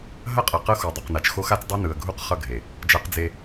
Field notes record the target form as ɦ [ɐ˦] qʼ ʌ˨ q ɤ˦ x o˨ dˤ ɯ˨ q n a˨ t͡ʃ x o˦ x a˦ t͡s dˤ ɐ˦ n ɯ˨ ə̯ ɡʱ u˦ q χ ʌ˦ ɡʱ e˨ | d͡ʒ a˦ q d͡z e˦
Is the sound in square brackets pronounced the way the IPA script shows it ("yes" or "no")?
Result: yes